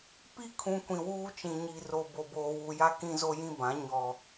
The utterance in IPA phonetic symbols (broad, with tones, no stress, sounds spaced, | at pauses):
p i˦ kʰ ũ˨ kʷ ĩ˨ w uː˦ t͡ʃ ĩ˨ ɲ i˨ r o˨ b o˨ b oː˨ w u˨ j a˦ k ĩ˦ z o˦ j ĩ˦ b ã˨˦ ɲ ɔ˨